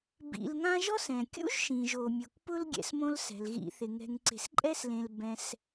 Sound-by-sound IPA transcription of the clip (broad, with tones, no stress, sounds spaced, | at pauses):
b ḭ˨ l ŋ ã˦ ʒ ɔ˥ s ɛ̃˩ kʲ ṵ˥ ʒ ʃ ĩ˩ ʒ o˩ mʲ o˩ k p ʊ˥ l ɡʲ ɛ̰˨ s m õ˦ l s ɛ̤˩ l ɣ ḭ˨ θ ɪ˩ ŋ ɛ̤˨ ŋ ǀ e̤˨ s ǃʼ ɛ˥ s l ẽ˨ l b ɛ̃˨ s